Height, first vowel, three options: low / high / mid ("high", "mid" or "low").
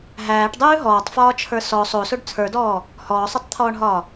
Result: low